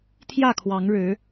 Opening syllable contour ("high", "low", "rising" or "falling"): falling